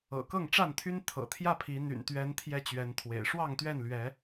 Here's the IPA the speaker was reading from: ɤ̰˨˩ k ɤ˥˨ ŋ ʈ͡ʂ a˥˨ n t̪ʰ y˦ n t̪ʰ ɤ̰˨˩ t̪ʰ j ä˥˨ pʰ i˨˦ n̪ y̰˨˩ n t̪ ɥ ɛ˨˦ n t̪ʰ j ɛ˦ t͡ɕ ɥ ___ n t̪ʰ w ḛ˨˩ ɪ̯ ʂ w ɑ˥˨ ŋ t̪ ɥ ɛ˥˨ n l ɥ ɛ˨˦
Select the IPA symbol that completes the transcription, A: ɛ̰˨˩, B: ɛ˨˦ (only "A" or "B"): B